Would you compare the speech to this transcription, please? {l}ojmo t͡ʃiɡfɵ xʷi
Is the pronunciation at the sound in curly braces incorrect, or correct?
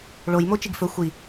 incorrect